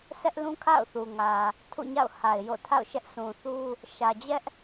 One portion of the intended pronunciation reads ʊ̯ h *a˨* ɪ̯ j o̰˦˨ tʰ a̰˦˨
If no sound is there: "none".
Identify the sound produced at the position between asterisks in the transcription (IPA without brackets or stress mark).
a˨